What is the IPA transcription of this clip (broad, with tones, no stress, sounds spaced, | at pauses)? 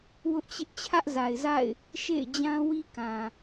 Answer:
w ʊ˦ ʔ t͡ɕ ɪ˦ ʔ t͡ɕʰ ä˦ ʔ z a˨ ɪ̯ z a̰˦˨ ɪ̯ | ʃ ḛ˦˨ ɪ̯ d͡ʑ ã˦ w i˦ k ã˨